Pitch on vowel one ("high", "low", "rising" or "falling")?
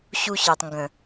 high